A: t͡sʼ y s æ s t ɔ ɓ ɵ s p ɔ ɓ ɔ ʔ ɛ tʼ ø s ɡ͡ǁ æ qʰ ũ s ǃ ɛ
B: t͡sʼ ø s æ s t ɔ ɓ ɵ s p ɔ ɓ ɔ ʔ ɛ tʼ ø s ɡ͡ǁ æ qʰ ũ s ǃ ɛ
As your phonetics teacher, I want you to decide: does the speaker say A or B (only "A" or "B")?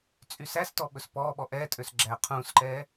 A